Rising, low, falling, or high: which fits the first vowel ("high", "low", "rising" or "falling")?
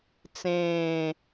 falling